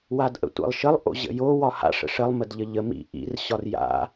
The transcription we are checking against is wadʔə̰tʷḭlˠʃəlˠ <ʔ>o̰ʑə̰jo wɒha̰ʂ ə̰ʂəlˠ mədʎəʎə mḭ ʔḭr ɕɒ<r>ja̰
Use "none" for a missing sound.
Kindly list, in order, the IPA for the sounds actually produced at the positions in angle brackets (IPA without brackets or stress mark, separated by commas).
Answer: ʔ, r